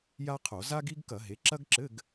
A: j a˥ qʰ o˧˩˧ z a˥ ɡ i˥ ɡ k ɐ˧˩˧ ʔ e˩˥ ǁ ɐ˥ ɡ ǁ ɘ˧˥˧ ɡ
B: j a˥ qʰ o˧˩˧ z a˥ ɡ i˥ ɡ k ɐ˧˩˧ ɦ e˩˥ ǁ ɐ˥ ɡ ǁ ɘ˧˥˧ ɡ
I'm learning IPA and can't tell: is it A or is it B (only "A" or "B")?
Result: B